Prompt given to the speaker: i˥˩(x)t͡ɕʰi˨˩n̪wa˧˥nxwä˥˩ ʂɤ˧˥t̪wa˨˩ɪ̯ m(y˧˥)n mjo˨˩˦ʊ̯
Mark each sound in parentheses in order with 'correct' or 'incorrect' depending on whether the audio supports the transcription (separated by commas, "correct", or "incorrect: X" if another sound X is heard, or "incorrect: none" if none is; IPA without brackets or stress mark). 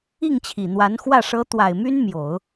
incorrect: ŋ, incorrect: y˥